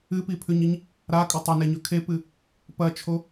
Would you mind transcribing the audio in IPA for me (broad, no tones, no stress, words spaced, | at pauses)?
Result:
ɨpipʰʉɲiɲ | ɾakʼɵ tˤɐneɲɵ kʰepɨ | pɐt͡ʃʰo